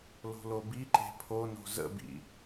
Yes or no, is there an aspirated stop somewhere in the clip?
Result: yes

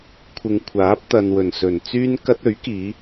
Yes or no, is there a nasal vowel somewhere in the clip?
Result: no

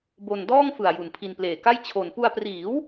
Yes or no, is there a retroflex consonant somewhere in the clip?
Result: no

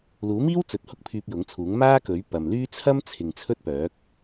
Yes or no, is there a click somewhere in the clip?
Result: no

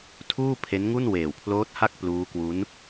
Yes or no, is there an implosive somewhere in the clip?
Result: no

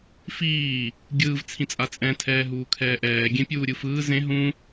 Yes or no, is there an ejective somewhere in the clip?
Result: yes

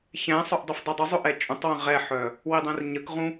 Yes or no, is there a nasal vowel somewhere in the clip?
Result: yes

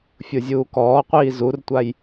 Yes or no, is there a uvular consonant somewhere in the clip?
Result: yes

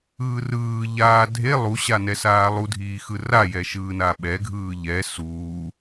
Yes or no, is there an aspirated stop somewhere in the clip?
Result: no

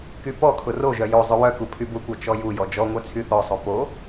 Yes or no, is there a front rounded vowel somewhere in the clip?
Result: yes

